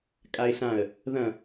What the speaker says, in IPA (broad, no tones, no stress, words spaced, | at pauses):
kʼaɪ̯ɬãə̯ | ðɐ̃